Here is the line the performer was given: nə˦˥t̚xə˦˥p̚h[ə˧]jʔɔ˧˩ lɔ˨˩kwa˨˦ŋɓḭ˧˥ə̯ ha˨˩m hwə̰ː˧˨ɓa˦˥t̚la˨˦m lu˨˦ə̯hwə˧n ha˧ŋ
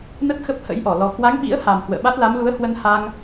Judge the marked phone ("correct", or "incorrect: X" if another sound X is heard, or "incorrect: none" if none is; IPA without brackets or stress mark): incorrect: ə̰˧˥